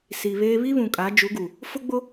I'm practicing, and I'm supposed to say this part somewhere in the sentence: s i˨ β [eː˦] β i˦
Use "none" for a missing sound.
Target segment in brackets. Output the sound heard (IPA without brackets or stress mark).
eː˦